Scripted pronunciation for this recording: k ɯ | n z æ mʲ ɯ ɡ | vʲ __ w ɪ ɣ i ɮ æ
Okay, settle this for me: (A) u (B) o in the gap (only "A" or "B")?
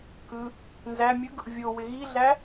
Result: B